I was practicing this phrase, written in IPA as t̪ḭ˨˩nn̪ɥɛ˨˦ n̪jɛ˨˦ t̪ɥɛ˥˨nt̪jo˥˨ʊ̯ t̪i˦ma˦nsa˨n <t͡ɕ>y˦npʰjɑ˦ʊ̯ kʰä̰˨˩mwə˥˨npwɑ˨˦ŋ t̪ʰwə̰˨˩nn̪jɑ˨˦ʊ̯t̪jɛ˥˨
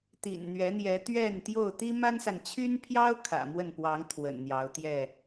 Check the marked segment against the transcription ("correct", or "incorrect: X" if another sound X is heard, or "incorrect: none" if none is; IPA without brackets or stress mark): incorrect: t͡ɕʰ